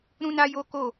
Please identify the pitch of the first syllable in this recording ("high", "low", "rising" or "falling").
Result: high